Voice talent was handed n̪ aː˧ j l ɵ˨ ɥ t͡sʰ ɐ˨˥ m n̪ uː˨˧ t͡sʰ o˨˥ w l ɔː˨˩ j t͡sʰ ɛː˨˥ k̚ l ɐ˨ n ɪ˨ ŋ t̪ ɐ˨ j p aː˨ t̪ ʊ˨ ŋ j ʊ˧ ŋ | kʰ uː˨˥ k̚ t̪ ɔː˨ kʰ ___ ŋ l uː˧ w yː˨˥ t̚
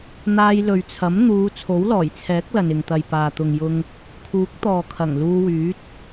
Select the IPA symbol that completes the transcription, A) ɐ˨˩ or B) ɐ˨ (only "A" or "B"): A